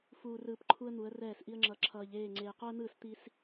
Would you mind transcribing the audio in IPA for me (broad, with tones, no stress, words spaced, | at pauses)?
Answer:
fuː˨rɯː˨p ǃʰu˦ə̯n̪u˨˦ə̯rɛː˦˨sʔi˦ə̯ ŋ͡ǁʌ˨ ǁʰʌː˨ʎeː˦˨ ŋ͡ǀeː˨qo˦ə̯n̪ɯː˦˨s t̪i˦s